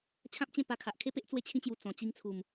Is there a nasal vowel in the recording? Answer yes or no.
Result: yes